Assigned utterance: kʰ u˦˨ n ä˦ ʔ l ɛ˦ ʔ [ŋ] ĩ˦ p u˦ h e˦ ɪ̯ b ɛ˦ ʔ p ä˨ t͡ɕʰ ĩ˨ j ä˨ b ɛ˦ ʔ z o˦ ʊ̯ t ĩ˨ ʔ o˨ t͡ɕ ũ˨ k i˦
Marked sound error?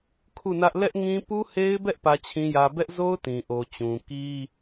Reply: no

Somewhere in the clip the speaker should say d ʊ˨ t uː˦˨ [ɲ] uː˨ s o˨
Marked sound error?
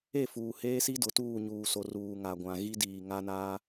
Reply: no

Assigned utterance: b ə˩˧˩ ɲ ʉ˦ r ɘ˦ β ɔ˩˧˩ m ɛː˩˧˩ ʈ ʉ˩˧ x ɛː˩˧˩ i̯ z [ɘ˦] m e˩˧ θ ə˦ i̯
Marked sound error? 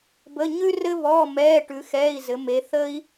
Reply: yes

